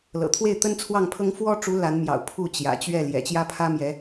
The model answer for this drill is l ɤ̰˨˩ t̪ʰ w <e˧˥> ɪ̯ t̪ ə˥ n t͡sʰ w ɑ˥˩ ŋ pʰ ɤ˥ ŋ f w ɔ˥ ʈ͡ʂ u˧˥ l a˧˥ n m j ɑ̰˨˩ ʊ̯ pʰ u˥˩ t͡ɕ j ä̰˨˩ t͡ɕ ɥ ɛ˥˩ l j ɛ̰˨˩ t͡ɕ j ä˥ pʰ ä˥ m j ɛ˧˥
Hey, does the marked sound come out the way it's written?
no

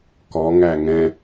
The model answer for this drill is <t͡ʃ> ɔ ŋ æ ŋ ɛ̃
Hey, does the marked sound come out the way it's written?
no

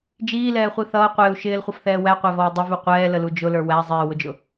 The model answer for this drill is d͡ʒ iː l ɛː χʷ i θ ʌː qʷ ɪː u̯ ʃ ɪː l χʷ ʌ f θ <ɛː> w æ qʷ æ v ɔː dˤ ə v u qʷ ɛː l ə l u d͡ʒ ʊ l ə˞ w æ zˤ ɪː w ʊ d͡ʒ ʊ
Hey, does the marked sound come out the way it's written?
yes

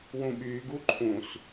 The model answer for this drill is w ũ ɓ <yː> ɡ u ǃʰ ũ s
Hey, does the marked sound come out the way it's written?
yes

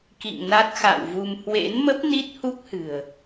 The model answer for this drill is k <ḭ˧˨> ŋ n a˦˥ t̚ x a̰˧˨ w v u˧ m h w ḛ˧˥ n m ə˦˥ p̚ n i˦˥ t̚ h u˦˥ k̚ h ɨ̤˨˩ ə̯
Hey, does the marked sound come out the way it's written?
yes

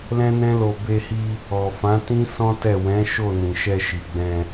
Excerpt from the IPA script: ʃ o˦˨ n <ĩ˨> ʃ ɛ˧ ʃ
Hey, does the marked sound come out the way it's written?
yes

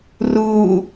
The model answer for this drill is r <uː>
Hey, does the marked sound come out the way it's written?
yes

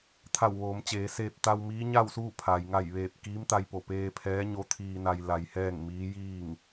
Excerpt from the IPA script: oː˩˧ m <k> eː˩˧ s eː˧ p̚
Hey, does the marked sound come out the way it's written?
no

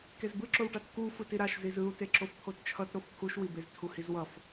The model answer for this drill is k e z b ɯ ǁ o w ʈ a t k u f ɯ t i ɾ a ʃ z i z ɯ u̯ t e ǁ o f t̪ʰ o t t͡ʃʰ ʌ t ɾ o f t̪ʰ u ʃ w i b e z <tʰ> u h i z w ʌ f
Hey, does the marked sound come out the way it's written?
yes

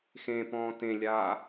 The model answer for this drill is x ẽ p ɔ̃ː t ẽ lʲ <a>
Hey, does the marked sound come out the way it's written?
no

